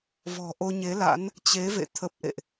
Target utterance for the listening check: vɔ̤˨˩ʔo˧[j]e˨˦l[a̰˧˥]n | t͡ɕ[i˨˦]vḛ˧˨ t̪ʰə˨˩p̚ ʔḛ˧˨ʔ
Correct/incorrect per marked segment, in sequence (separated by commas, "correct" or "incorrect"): incorrect, correct, incorrect